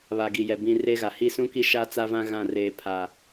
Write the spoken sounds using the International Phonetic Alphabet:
βa˨ɡi˨jɛ˨ bĩ˨ re˦ ɣa˨ hi˦ sũ˦ki˦ʃa˦ t͡sa˦vã˦ɣã˦˨ reː˦pʰa˦

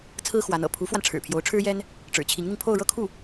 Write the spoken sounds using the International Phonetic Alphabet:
t͡sʰɹ̩˥xwa˧˥nɤ̰˨˩ pʰu˧˥fwa˧n ʈ͡ʂʰɻ̩˨˩pʰjo˧˥ʊ̯ʈ͡ʂʰɻ̩˥jɛ˥n | ʈ͡ʂɻ̩˨˩t͡ɕʰi˧˥ŋn̪i˧ŋ pʰo˥˧ʊ̯ ɻɤ˥˧kʰu˥˩

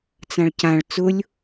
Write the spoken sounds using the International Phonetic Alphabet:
t͡sãɭcãɭ t͡sʊlʲ

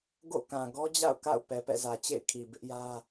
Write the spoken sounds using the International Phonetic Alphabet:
ɡo̰˦˨kã˨ ɡɔ˦d͡ʑa̰˦˨ʊ̯ka̰˦˨ʊ̯ pɛ˨pɛ̰˦˨zä˨ t͡ɕḛ˦˨ɪ̯kʰi˨bɪ˦ʔjä˦

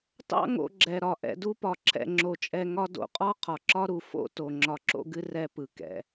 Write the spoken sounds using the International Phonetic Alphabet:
tɑ̰˦ŋo̰˨ɡ͡ǁɛ˩ ɾɒ˩ ʔɛ̰˨ du˦pɒ˩ǁʰɛ̰˨ ŋ͡ǁo˩t͡ʃʼɛ˨ ŋɒ˦do̰˦qʼɒ˥ qʰɒ˩ǁɒ˦ɾu˩ fo̰˦to˩ ŋ͡ǁɒ˨ǁo̰˦ɡɨ˦ rɛ˨ pɯ˩ kɛ̰˩

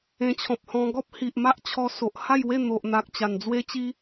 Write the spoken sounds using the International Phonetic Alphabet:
ẽ˧t͡ɕʰɔ̃˨p̚hɔ̃˧ ɡɔ˦p̚ hi˨ʔ ma˦ʔt͡ɕʰɔ˧ so˨ʔha˥˧jwe˥˧ n̪o˨ʔn̪a˨k̚ t͡ɕa˨˩nd͡zwe˦t͡ɕi˦

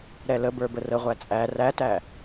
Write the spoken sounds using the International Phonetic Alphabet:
ɾɛləbə˞ bərəʁʷæ t͡sʼæ rætæ

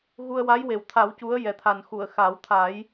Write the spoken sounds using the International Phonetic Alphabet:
ɣu˧ə̯wa˧˥jwe˨˩wt̪ʰa˨˩˦w cu˧˥ə̯jɛ˨˩t̪ʰa˨˩n xu˨˩˨ə̯ xa˨˩˦wt̪ʰa˨˩˦j

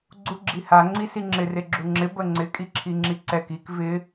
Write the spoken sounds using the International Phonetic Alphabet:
ɡ͡ǀuɡ͡ǁiha ŋ͡ǀisiŋ͡ǁɪr eɡ͡ǁuŋ͡ǁɪ bəŋ͡ǀɪ kʼiǁʰiŋ͡ǁiǀɛk ik vɪ

